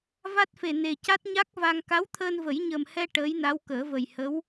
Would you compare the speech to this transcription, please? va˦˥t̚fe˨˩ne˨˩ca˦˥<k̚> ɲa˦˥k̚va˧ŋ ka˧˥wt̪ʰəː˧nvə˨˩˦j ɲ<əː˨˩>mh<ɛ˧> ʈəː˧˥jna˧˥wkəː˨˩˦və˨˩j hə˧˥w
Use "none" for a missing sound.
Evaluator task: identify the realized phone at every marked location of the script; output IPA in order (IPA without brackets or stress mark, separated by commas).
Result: t̚, ə˨˩, ɛ˧